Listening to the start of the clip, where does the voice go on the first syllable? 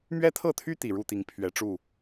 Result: high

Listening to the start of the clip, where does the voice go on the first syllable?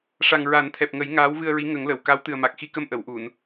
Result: low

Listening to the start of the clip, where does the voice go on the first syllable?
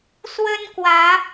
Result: high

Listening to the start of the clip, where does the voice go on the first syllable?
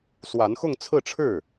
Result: rising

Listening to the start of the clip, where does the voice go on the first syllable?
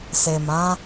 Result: low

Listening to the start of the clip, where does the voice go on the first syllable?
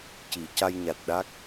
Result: low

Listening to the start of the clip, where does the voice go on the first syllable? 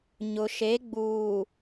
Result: low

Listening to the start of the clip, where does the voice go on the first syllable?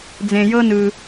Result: low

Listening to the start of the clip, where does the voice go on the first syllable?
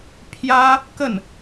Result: high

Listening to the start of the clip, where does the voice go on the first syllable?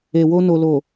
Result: low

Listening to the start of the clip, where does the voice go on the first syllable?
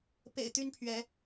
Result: low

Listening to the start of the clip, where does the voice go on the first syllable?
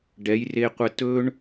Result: rising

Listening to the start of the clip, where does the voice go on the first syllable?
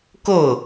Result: falling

